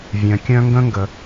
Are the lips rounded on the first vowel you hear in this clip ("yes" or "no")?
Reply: yes